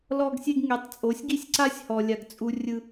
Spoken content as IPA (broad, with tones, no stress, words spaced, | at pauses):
lɔ˧ɡsʲe˧ɡ ŋe˨˦tˤt͡sʼo˨˦sʲɡi˦sʲǀa˦sʲ hɔ˨lʲa˨ɡt͡sʼu˧ rʲɯ˧